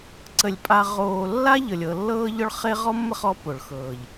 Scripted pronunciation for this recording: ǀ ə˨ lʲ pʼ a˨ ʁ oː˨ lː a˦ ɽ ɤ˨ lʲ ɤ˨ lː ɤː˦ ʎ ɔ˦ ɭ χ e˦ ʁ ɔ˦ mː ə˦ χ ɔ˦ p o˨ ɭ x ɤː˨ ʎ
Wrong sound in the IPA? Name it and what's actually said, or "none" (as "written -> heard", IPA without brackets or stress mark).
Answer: ɽ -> ʎ